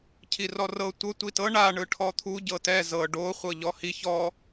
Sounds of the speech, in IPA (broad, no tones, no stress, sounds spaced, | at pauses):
cʰ i r ɔ r ɤ tʷ ɤ tʷ i t ɤ ɳ a ɳ ɯ ʈʰ ɔ t̪ʰ u ɟ ɤ t ɛ z ɤ ɖ o χʷ ɤ ʎ ɔ h i ç ɔ